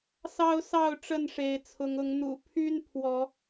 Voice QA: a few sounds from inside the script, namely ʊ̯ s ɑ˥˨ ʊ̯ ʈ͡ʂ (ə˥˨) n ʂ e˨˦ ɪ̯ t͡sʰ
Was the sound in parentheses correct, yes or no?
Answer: yes